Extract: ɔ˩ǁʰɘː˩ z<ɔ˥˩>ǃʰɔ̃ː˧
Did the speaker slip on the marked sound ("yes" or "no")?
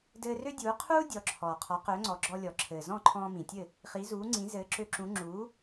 yes